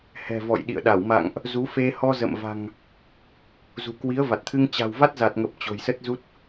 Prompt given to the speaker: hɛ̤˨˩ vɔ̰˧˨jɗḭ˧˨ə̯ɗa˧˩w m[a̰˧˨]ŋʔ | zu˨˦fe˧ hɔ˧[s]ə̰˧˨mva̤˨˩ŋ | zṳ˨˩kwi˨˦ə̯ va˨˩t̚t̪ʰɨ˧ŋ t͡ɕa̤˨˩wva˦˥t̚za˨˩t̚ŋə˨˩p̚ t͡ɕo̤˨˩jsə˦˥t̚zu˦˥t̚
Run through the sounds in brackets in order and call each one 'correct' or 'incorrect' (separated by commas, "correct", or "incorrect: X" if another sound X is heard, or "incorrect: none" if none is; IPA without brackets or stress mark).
correct, incorrect: z